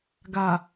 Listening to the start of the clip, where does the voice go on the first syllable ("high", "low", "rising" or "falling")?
low